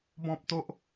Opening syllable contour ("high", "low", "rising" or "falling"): high